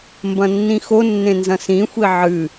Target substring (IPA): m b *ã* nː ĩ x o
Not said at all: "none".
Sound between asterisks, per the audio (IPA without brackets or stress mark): ɐ̃